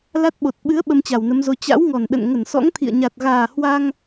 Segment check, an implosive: present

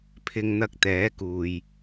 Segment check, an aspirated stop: present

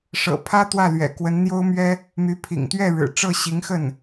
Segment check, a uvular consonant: absent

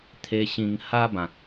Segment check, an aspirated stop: present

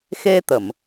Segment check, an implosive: absent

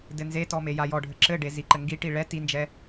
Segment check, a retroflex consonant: present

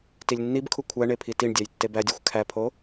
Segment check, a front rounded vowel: absent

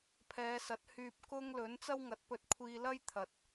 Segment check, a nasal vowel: absent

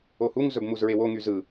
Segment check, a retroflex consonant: absent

